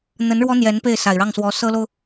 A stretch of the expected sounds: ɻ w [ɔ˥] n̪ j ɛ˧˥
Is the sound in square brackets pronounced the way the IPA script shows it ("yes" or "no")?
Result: yes